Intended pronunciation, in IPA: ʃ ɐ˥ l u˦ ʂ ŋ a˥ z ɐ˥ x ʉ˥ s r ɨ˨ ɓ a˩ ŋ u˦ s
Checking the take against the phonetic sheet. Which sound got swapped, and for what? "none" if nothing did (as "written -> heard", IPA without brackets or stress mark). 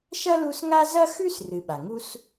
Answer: ʂ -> s